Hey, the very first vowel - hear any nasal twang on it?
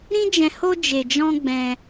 yes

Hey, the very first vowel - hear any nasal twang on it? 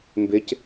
no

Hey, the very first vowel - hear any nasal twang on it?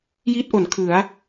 no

